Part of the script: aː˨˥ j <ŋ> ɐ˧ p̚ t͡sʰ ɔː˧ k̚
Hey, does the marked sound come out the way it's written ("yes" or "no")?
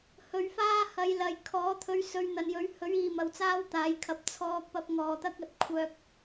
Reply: no